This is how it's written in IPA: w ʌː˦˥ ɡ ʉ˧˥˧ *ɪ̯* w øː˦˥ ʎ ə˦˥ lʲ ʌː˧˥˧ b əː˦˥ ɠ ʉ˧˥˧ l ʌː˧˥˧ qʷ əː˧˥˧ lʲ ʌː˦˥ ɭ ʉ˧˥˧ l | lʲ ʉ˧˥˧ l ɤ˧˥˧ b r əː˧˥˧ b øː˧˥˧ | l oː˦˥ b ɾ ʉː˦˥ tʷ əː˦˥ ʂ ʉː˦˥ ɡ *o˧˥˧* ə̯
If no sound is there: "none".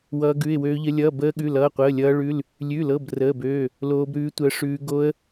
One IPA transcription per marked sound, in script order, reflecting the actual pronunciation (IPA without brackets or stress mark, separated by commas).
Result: ɪ̯, o˦˥